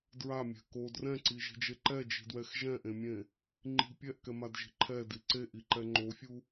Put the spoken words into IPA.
dɹamʲɛ̤ ko drɛ̃ǀiʒi̤d͡ʒe ǃɛd͡ʒi̤dwɛx ʒɛ̃ʔẽmʲẽ | ŋ͡ǃi̤ pʲɛʔkɛmadʒi̤ ǃʰɛdi ǀeʔiǃɛ ŋ͡ǃofʲu

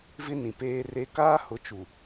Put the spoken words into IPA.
vɪ˦nĩ˨ peː˦re˦ kaː˦hʊ˨˦t͡ʃu˨

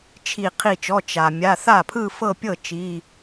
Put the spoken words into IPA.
t͡ʃʰi˧˩ qʰi˧˩t͡ʃɔ˩˧˩ t͡ʃa˩ mʲa˩˧˩ θa˥˩pʰɯ˥˧fɤ˥˧pʲɤ˥˩ t͡ʃi˩˧˩

